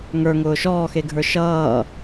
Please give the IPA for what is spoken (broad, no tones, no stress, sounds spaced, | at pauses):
ŋ ə˞ ŋ ʊː ʃ ɔː x e ɡʱ ə˞ ʃ ʌː